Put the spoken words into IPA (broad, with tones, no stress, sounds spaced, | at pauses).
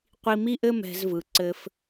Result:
qʷ i˧ m i˦ ʔ ɘ˦ m ɛ̤˧ z v ɯ˨ ǀ ɘ˧ f